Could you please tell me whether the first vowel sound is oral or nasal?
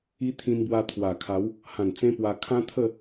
oral